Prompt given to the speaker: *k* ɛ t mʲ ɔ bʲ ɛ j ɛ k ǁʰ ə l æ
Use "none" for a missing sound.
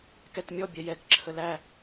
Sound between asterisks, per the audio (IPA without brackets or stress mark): k